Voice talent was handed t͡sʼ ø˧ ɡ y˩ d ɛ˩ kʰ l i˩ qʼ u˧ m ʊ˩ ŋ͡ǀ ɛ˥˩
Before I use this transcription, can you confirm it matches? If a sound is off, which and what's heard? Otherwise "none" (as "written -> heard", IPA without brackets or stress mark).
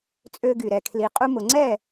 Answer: d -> ɾ